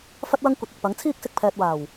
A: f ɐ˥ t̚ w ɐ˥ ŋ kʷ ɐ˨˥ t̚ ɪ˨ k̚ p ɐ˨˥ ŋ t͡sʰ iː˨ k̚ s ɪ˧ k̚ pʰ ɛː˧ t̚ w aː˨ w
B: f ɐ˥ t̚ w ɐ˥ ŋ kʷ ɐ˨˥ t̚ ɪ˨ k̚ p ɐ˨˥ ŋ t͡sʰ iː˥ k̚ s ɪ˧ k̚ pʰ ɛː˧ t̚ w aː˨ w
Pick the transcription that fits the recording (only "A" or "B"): B